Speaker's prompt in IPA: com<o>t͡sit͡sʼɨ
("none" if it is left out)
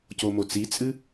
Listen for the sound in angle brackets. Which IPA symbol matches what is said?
o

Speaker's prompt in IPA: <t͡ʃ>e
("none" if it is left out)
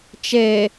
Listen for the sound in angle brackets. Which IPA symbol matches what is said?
t͡ʃ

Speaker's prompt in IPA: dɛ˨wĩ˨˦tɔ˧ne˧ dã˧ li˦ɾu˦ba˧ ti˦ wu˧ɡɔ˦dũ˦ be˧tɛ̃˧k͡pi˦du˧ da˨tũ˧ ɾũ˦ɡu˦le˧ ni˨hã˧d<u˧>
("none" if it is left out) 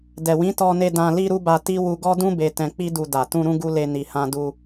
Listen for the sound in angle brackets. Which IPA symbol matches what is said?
u˧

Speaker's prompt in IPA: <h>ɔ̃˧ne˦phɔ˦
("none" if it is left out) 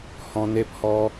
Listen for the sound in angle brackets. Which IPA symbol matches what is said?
h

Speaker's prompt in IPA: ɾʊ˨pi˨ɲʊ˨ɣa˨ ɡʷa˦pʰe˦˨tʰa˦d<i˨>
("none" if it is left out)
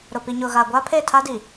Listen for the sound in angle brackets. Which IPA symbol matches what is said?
i˨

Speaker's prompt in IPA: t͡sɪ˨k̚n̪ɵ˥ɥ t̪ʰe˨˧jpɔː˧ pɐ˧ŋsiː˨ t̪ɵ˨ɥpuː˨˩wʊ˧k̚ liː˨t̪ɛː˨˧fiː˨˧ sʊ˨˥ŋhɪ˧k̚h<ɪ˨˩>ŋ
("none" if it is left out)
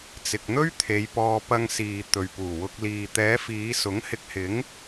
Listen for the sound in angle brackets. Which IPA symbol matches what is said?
ɪ˨˥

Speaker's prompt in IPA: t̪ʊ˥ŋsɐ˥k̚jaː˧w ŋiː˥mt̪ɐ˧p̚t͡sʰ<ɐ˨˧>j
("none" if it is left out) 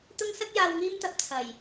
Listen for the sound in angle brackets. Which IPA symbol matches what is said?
ɐ˨˩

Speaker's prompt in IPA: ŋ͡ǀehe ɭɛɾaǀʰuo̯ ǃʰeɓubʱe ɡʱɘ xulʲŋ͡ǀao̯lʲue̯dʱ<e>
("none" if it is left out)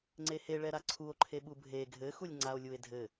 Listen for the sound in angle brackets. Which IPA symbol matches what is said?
ɘ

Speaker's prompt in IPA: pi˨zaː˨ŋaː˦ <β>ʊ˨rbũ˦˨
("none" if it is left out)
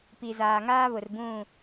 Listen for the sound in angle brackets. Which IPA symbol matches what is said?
β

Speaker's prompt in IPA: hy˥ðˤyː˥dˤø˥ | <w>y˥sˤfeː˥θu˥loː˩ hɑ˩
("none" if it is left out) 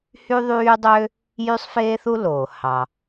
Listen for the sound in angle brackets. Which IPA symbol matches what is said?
j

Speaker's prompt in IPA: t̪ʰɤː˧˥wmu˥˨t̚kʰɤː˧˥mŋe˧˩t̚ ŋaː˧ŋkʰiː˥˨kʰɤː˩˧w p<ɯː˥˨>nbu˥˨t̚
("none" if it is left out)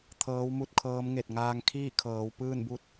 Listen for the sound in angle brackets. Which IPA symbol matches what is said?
ɯː˥˨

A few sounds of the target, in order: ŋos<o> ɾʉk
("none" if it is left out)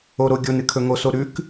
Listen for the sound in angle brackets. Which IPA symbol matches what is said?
o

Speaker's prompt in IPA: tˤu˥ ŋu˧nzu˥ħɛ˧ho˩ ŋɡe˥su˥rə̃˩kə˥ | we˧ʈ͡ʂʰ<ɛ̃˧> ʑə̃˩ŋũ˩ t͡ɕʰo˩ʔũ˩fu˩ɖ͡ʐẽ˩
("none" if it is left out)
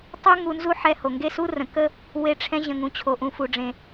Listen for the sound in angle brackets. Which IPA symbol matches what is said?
ɛ̃˧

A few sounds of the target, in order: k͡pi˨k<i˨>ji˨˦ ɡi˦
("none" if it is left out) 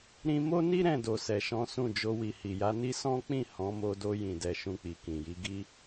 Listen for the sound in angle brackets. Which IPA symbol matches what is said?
ĩ˨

